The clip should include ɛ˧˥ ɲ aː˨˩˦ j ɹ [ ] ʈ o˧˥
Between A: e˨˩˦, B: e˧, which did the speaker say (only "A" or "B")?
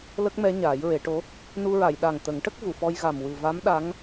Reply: A